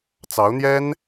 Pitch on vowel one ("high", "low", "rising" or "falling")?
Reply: rising